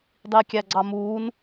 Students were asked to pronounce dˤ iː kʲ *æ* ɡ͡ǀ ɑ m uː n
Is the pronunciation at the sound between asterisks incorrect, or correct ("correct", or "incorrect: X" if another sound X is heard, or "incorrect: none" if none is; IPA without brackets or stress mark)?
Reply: correct